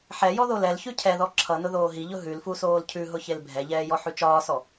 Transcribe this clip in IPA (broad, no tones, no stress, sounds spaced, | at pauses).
ħ ɛ j ɔ ð o l ɛ l ç ʉ cʰ ɛ ð ɔ ǁʰ ʌ n ʊ ð oː ɦ i ʎ ʊ ɦ ʉ l f u s oː l cʰ ʉ ɦ ʊ ç e l bʱ ɛ ʎ ɛː j ɔ ħ ʉ t͡ʃ ɒː s ɔ